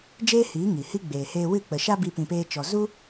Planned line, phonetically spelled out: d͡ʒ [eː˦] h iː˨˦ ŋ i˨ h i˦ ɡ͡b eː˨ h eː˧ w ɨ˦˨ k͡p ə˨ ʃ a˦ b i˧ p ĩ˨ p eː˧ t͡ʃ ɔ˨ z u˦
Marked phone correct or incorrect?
correct